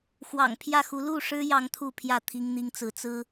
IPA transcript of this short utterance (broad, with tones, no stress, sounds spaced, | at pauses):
x w ɑ̰˨˩ ŋ pʰ j ä˥˨ x u˨˦ l u˥˨ ʂ ɻ̩˦ j ɑ˨˦ ŋ t̪ʰ u˥˨ pʰ j ä˥˨ t̪ʰ i˦ ŋ n̪ i˦ ŋ t͡s ɹ̩˨˦ t͡s ɹ̩˦